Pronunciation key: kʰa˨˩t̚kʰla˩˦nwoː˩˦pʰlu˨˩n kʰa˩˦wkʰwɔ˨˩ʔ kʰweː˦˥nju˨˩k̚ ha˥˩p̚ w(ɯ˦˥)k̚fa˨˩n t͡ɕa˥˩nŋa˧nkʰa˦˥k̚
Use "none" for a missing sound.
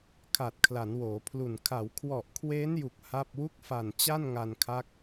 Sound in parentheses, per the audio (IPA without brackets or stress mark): u˦˥